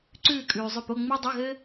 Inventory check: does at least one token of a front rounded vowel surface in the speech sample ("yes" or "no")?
yes